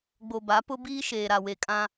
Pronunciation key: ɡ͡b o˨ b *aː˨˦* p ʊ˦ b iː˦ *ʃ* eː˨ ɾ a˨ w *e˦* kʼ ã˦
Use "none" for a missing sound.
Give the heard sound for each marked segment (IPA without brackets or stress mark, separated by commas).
a˨˦, ʃ, e˨